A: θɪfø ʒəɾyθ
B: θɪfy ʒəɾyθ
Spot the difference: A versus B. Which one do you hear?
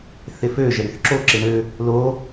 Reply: A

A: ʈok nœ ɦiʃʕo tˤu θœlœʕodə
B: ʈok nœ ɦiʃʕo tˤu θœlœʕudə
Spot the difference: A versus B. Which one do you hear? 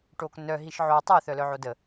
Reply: A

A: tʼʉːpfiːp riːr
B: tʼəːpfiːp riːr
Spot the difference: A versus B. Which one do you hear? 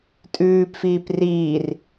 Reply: A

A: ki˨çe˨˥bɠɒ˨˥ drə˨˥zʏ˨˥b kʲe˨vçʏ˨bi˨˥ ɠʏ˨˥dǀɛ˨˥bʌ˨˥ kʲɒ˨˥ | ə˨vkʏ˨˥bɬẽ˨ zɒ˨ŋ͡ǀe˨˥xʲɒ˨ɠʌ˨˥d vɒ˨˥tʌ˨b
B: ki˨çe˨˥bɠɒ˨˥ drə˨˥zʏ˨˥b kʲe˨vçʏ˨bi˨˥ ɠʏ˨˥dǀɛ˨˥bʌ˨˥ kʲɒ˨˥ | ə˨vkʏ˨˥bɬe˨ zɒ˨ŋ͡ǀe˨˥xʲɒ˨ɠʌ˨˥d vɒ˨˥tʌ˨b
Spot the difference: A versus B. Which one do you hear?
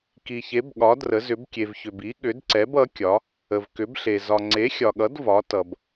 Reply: B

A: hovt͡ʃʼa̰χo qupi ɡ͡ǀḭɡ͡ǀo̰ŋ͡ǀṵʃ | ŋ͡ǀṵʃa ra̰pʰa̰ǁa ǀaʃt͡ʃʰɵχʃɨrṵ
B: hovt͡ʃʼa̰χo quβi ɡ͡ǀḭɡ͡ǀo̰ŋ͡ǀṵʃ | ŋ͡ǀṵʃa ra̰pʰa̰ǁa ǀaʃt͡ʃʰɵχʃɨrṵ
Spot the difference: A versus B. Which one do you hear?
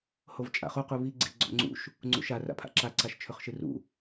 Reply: B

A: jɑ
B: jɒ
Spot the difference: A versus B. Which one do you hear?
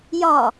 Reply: B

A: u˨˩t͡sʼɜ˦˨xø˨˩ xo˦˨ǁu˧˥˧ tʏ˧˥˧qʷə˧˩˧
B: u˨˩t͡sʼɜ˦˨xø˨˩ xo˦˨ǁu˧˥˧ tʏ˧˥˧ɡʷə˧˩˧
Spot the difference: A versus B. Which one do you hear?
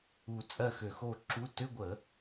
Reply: B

